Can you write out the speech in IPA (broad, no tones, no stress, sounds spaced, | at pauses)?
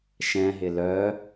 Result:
ʃ ɛ̃ ɦ ɪ l œ